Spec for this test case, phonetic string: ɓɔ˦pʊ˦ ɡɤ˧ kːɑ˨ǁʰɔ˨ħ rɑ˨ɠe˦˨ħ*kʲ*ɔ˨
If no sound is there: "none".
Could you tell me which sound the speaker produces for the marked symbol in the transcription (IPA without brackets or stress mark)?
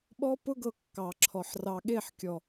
kʲ